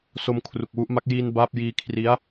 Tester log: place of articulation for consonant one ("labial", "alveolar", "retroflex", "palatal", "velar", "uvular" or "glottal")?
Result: alveolar